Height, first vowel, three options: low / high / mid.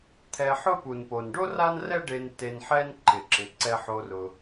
mid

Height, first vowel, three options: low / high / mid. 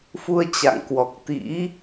high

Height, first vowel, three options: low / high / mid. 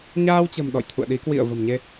low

